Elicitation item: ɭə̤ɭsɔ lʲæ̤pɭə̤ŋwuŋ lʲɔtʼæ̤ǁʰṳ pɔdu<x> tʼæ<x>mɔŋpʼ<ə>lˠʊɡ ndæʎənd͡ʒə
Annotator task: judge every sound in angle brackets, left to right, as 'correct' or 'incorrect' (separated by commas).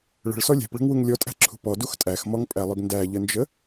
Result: correct, correct, incorrect